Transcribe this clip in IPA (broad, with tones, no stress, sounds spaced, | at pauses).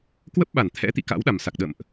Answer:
k w ə˦˥ p̚ ɓ a˧˩ n t̪ʰ ɛ̰˧˥ t̪ ḭ˧˨ k a̰˧˥ w ɗ a˨˩ m s a˨˩ k̚ ɗ ə̰ː˧˨ m ʔ